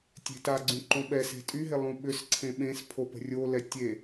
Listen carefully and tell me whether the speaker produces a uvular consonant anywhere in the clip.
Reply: no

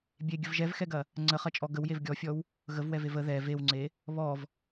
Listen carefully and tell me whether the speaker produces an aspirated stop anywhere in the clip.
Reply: no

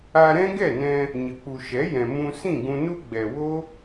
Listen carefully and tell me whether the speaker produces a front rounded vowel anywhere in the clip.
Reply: no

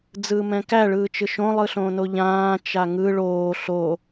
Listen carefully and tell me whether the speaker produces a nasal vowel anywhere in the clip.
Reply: yes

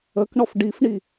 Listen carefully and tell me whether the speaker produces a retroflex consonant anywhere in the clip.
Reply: yes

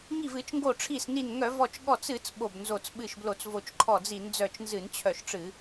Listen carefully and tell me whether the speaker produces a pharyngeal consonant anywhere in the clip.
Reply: no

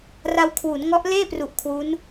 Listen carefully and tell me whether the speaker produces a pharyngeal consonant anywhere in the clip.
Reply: no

